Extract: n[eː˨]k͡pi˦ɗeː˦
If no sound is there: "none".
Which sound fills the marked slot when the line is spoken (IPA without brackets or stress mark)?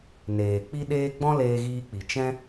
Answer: eː˨